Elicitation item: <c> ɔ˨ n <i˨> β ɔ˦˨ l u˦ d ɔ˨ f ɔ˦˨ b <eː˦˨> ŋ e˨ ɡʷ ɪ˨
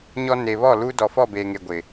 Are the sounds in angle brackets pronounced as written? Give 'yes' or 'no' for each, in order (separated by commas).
no, no, no